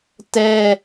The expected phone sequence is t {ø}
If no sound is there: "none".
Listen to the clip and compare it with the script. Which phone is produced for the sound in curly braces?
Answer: ɛ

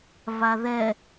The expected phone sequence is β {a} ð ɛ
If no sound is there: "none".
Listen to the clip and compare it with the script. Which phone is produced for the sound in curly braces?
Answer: a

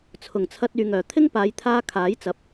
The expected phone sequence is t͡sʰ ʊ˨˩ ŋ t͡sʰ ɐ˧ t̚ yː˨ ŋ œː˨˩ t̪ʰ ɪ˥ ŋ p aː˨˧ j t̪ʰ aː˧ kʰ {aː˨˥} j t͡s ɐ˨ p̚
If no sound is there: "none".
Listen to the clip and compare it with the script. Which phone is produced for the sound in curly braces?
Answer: aː˨˥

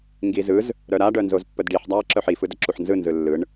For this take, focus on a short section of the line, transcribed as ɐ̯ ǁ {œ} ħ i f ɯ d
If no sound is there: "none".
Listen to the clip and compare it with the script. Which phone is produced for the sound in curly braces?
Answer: œ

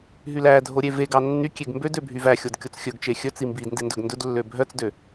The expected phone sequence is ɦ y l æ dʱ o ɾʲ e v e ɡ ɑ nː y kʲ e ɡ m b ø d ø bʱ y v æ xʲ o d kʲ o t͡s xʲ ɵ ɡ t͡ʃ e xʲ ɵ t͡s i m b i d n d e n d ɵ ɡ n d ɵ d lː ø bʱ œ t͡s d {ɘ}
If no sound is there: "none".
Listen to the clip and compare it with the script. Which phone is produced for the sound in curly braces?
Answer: ø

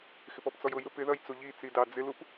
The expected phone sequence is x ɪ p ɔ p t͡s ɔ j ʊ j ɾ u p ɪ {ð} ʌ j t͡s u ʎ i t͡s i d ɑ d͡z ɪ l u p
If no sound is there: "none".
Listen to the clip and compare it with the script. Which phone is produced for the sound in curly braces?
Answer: ð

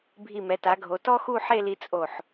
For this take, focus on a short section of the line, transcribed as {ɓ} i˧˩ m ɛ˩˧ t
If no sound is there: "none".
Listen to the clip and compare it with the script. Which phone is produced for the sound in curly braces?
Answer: bʱ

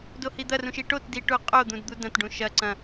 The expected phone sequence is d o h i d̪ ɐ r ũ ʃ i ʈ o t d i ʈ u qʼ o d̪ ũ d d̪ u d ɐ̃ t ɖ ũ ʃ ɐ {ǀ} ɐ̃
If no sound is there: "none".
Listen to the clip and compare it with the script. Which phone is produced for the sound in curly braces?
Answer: ǀ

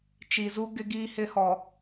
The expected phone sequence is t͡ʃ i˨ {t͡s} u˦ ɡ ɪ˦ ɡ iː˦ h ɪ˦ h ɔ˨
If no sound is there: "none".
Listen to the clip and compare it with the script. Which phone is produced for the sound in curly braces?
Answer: z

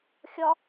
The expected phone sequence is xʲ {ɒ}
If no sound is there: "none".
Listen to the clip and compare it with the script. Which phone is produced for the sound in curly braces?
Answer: ɒ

